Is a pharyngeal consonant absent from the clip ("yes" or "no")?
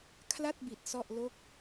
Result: yes